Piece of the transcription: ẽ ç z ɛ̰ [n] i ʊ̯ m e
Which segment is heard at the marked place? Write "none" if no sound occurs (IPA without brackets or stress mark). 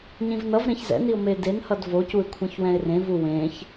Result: n